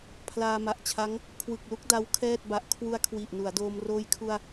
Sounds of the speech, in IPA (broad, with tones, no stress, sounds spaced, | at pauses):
pʰ l aː˧ m a˨˩ ʔ t͡ɕʰ a˦˥ ŋ | kʰ w ɯ˨˩ k̚ l u˥˩ k̚ d a˦˥ w kʰ ɛː˥˩ t̚ b a˨˩ ʔ kʰ w u˧ a̯ kʰ w i˨˩ ʔ n u˩˦ a̯ d oː˧ m r oː˧ j kʰ u˧ a̯